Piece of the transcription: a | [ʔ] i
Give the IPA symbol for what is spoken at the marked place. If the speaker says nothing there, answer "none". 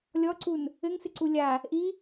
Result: ʔ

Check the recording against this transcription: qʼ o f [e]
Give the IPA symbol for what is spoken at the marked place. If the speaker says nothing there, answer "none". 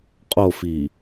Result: i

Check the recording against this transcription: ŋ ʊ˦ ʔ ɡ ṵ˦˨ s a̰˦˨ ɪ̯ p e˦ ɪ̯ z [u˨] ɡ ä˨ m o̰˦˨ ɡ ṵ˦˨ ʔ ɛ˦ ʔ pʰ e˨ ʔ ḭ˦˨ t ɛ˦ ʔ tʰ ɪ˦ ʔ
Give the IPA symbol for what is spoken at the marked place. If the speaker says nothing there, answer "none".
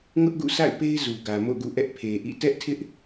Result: u˨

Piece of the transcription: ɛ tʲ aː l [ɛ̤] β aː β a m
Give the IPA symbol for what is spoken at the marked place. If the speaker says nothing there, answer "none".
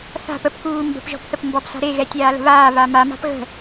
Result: ə̤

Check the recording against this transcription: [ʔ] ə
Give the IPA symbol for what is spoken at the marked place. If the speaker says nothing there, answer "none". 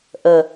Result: ʔ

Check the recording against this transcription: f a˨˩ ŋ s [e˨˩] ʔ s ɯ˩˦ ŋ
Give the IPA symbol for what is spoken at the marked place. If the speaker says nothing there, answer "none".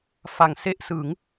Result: e˥˩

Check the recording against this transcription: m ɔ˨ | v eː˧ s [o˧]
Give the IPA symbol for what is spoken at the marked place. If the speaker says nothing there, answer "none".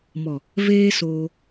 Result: oː˧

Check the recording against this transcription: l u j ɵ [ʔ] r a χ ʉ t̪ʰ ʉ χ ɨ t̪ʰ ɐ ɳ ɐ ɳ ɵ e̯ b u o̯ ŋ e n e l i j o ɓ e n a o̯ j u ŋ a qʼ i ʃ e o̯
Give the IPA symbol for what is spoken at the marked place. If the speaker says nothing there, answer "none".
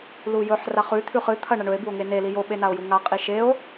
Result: ħ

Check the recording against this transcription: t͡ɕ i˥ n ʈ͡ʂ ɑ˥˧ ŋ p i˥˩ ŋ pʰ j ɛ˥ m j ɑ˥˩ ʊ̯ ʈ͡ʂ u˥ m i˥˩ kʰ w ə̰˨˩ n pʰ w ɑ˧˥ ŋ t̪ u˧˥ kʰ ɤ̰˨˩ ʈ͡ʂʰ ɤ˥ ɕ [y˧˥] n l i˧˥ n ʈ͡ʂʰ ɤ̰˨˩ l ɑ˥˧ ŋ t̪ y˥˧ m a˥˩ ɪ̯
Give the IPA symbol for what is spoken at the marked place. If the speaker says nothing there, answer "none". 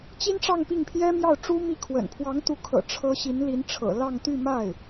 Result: i˧˥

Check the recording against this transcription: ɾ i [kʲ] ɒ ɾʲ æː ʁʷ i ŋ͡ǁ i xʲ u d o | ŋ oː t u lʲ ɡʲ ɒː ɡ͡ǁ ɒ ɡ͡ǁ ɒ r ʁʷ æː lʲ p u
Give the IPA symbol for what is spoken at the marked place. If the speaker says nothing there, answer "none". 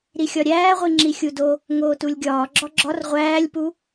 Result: xʲ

